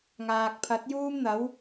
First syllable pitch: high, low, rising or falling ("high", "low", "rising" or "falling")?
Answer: low